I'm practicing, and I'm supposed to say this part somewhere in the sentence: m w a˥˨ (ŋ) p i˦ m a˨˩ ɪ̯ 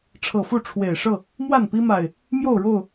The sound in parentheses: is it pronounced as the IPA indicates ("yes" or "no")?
no